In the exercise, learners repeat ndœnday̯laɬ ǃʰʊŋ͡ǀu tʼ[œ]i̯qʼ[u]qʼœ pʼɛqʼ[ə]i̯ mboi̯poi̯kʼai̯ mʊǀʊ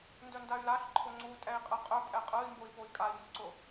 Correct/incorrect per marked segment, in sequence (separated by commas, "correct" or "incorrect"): incorrect, incorrect, incorrect